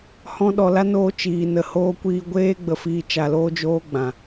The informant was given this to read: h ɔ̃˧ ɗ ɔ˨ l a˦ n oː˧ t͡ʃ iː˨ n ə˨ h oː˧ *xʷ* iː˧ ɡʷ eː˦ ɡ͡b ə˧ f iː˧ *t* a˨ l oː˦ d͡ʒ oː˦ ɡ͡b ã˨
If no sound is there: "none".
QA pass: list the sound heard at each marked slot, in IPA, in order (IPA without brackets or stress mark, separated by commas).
kʷ, t͡ʃ